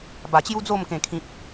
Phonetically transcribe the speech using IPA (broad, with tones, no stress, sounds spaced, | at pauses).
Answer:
b a˨˩ t͡ɕ j u˦ d͡z o˥˧ m k ẽ˨˩ kʰ ĩ˨ p̚